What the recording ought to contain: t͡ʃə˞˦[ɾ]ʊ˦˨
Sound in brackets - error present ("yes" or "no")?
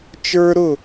no